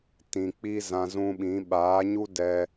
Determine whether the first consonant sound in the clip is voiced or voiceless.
voiceless